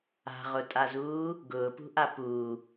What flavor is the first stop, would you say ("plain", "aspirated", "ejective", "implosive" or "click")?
ejective